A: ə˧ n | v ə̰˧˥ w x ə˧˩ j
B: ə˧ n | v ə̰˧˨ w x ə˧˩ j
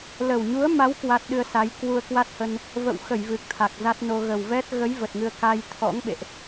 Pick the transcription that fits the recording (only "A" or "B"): B